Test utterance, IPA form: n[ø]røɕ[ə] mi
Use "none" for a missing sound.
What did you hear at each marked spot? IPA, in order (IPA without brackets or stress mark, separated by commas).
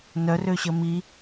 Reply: œ, ə